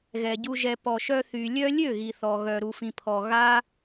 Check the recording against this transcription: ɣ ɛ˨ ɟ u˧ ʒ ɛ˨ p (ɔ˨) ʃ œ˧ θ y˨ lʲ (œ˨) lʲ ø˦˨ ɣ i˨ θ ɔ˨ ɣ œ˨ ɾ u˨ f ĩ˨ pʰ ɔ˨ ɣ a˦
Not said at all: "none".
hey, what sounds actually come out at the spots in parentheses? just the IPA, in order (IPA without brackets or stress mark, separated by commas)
ɔ˨, œ˦